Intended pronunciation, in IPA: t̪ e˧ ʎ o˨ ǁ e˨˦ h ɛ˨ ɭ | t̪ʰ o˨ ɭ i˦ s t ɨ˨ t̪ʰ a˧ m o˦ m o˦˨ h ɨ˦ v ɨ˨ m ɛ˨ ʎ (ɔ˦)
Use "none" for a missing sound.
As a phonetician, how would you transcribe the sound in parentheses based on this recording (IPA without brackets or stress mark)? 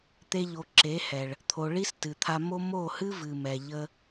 ə˦